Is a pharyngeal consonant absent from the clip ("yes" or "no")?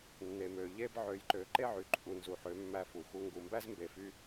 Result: no